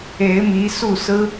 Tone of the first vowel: rising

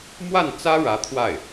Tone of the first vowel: falling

